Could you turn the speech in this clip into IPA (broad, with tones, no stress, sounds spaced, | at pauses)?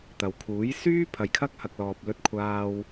t̪ ɐ˨ w kʰ uː˨˥ j s yː˥ pʰ ɐ˧ j kʰ ɐ˥ k̚ h ɐ˧ k̚ l ɔː˧ p̚ l ɵ˥ t̚ kʷʰ aː˥ w